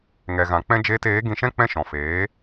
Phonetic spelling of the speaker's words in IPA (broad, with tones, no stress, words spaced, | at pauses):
ŋɛ˨ɣã˨k͡pɛ̃˦ d͡ʒeː˧teː˨˦ ɡĩ˧ʃɛ̃˦ k͡pɛ̃˦ʃɔ̃˨feː˨˦